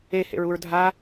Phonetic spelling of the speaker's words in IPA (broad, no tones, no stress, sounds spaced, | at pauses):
e h ḛ ɹ u ɹ dʱ a